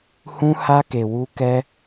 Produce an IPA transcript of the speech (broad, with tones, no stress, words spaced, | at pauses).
hũ˦ha˦ ke˧wu˦ kɛ˦